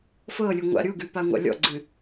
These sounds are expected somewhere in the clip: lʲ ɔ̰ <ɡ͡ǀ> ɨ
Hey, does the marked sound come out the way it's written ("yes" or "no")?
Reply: yes